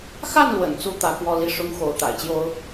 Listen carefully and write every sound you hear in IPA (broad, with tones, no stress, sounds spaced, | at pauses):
x a˥˩ n l w ə̰˨˩ n t͡s u˥ t̪ ä˧˥ k w ɔ˥˧ l i˥˩ ʂ ʊ˥ ŋ x o˧˥ ʊ̯ t̪ a̰˨˩ ɪ̯ t͡ɕ j o˥ ʊ̯